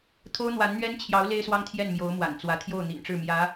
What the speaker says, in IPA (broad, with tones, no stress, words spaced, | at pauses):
t̪ʰo˥ʊ̯n̪wa˧˥nn̪ɥɛ˥nt͡ɕʰjɑ˧˥ʊ̯ le˥ɪ̯swɑ˥ŋt̪ʰjɛ˥˩n mjo˧˥ʊ̯mwa̰˨˩nt͡swä˧˥ t̪ʰjo˥˩ʊ̯n̪ḭ˨˩nʈ͡ʂɻ̩˥˩mjä˧˥